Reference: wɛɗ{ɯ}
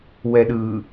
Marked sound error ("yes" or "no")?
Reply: no